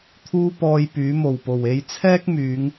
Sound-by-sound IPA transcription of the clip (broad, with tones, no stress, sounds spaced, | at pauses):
t̪ʰ uː˥ p ɔː˧ j p yː˨˥ m o˨˩ w p o˨˩ w e˧ j t͡sʰ ɛː˥ k̚ m yː˨˧ ŋ